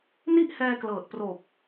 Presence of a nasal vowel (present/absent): absent